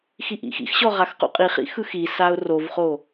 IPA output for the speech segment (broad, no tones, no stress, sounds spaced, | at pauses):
x i ʔ ḭ x ḭ x ɕ ɔ ʁ a x q ṵ qʼ i χ ḭ x ɯ x i s a ʊ̯ r o v χ o